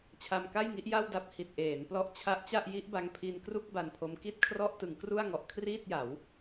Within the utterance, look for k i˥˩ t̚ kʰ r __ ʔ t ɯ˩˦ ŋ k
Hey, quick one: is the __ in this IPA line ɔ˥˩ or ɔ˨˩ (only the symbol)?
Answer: ɔ˥˩